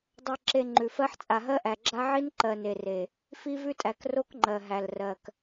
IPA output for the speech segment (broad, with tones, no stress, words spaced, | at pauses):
dˤɜ˨ǁe˨ ŋ͡ǃʉ˨fɜ˦ħ t͡sʼa˨ɦɜ˦ʔæ˨ɡ͡ǁa˦ ʕi˦nǃɜ˨ ne˨re˨ | fi˦vʉ˦tʼæ˨k ro˦kŋ͡ǃɜ˨ɦæ˨l rɜ˨k